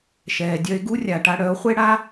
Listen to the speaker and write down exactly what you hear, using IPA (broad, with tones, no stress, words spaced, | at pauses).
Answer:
ʃɛː˨dʲœ˧e̯ ɡu˦rʲa˨ʈa˧ɽœ˨˦o̯ χʷe˦ɽa˦